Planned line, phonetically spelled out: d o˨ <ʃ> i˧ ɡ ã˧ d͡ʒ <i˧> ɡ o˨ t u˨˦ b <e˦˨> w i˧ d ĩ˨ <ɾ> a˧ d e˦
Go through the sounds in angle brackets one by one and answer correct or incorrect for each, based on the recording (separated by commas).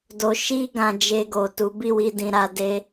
correct, incorrect, incorrect, correct